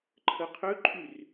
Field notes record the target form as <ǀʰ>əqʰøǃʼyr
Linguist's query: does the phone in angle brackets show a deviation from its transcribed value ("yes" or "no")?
yes